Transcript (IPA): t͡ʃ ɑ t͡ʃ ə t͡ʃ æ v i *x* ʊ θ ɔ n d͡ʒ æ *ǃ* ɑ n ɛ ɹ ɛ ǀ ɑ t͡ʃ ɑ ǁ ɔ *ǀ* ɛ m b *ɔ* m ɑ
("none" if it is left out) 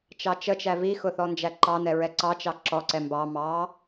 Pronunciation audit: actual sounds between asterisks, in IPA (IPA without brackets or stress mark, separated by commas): x, ǃ, ǀ, ɑ